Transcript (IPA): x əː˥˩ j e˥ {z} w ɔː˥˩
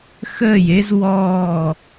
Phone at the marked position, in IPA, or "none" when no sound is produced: z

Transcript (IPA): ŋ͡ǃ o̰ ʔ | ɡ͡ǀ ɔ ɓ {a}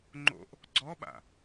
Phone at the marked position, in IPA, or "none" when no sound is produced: a̰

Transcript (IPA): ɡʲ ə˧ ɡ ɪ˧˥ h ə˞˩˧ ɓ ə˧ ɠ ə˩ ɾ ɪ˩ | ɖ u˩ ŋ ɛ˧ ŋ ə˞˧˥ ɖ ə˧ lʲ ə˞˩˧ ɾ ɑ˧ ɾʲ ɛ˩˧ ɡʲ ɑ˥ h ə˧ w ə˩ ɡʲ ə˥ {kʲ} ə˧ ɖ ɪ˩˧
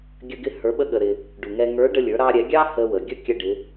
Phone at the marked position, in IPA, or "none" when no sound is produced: kʲ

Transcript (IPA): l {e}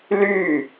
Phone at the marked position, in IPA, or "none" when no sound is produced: y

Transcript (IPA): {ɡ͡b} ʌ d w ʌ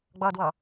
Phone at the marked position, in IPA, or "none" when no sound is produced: ɡ͡b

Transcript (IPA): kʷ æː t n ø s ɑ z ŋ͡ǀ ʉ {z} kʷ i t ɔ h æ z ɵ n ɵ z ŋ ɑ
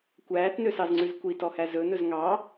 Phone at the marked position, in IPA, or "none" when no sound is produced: z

